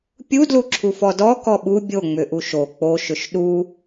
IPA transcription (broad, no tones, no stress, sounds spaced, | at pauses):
pʲ u d l u ǁʰ u f ɔ d ɔ k ɔ ɓ u bʲ o ŋ͡m ʏ ʔ u ʃ o k͡p o ʃ ʏ ʃ ɗ u